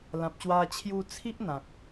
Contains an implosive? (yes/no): no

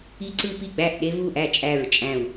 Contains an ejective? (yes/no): yes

